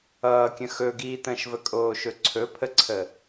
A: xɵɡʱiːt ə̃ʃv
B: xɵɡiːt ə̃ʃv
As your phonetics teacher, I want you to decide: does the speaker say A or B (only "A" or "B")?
B